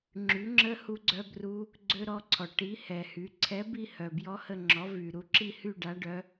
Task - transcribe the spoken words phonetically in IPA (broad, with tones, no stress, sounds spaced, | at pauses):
ŋ͡ǁ y˨˥ ŋ͡ǁ ə˦˥ h u˦˥ ɡ͡ǀ œ˦˥ b r u˦˥ | ɡ͡ǀ ø˦˥ ɾ ɔ˨˥ ǀʰ ɔ˩ ʈ i˨˥ h ɛ˩ h y˩˧ ǀʰ ɛ˨˥ b i˥˧ h œ˩ b j ɔ˦˥ h ə˥˧ ŋ͡ǁ ɔ˨˥ v y˩ ɾ u˥˧ ǁ i˥˧ h y˥˧ ɖ a˨˥ ɖ œ˨˥